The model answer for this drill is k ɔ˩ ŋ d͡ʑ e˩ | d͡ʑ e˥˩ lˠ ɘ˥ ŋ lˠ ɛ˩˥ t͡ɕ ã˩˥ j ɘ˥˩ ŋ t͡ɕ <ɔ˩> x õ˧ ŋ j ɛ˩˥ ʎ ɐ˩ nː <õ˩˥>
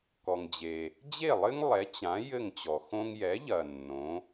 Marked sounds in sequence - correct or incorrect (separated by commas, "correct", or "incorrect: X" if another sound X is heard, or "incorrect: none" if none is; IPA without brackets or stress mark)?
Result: correct, correct